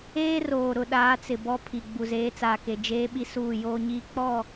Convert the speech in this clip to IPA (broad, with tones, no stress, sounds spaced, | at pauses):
eː˦ r oː˨ ɾ ʊ˨ ɗ aː˨˦ t͡s ɪ˨ b ɔ˦ pʰ i˨ ɡ͡b u˨ z eː˨˦ t͡s aː˨ k e˨ d͡ʒ eː˦ ɓ i˦ s uː˦˨ j oː˦ ɲ iː˦ k͡p ɔ˦˨